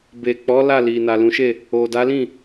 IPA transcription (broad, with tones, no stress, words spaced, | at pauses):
be˨k͡pɔ˨˦ la˦˨li˨ na˨lũ˨˦ʃe˦˨ | o˨da˨˦lĩ˦˨